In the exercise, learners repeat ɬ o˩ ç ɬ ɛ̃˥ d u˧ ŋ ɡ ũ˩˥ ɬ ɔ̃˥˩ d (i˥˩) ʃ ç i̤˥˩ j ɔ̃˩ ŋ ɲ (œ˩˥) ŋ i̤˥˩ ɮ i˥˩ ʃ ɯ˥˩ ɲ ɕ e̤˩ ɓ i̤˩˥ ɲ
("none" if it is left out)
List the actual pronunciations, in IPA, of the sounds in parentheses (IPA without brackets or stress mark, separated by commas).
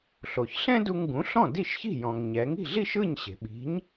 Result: i˥˩, ɛ˩˥